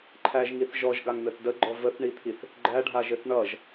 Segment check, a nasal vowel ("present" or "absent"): absent